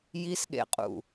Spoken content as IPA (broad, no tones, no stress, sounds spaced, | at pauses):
j i s ɠ ḛ qʼ ṵ